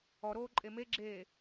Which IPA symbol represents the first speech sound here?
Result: ɔ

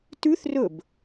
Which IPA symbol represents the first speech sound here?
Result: t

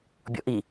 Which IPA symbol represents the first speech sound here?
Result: bʲ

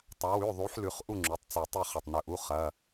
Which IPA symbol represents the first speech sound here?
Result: tˤ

